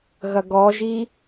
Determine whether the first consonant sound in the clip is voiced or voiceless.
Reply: voiced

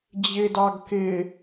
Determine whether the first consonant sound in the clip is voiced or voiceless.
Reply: voiced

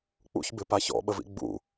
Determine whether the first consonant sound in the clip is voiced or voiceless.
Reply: voiceless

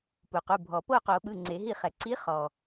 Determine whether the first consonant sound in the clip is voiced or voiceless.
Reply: voiceless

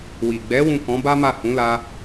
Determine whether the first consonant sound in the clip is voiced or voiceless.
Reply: voiced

